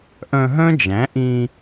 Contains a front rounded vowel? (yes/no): yes